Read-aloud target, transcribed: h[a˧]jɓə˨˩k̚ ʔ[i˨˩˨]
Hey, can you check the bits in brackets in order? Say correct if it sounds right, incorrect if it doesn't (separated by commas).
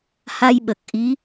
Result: correct, incorrect